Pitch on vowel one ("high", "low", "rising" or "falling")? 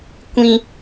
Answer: high